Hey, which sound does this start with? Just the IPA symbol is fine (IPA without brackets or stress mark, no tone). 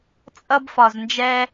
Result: t͡sʼ